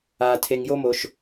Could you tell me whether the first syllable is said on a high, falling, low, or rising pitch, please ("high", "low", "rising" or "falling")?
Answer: low